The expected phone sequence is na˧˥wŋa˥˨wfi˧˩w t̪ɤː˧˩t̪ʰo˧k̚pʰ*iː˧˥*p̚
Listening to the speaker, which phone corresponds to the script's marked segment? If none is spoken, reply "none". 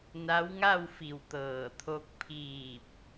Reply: iː˧˩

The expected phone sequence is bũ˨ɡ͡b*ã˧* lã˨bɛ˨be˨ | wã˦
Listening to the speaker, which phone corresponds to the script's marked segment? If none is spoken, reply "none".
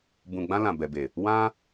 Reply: ã˧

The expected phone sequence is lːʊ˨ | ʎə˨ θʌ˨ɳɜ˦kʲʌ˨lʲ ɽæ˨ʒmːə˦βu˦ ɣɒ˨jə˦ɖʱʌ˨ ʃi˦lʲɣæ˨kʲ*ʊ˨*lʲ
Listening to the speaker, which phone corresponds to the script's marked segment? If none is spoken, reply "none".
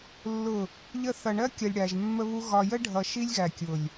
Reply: ʊ˨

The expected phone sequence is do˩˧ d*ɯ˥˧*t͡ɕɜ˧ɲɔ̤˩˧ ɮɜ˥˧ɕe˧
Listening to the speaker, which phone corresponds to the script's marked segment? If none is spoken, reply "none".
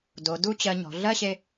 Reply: u˥˧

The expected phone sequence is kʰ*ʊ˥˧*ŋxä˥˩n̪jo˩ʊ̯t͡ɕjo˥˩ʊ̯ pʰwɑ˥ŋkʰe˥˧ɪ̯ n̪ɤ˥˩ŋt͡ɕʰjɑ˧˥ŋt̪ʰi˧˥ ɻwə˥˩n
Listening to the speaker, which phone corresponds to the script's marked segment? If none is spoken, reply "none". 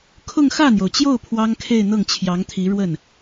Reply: ʊ˥˧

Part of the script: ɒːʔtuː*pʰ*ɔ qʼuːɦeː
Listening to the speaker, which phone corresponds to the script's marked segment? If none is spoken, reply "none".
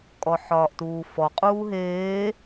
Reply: f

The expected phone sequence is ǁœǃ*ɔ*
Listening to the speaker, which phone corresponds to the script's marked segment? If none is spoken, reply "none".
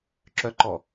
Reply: ɔ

